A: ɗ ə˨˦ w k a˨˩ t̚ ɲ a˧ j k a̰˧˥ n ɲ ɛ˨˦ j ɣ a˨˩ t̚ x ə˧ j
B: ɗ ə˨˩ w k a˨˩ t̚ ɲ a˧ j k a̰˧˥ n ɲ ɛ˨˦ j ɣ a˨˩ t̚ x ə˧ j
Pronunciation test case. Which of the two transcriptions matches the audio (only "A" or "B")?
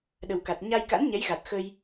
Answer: B